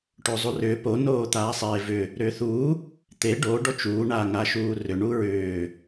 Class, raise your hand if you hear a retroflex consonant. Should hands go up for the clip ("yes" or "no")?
yes